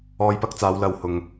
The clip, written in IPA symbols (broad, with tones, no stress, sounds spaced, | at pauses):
ɔː˧ j p ɐ˧ k̚ t͡s aː˨˧ w l ɐ˨ w h ʊ˨ ŋ